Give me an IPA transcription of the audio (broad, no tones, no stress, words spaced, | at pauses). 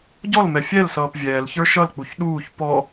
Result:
ɟɔlmɛ fʲɛlsʌːp vʲɛːlçə˞ ʃʌlk͡puç ɗuːç pɔ